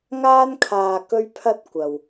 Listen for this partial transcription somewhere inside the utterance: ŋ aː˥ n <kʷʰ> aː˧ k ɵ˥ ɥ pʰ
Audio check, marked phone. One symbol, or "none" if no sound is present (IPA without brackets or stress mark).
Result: kʰ